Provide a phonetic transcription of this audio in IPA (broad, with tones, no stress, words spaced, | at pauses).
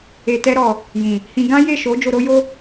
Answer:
e˨tɛ˧ɾɔ˨ | jĩ˨ | hĩ˧ ɡã˦je˦˨ʃo˨˦ d͡ʒo˧ɾo˦jo˦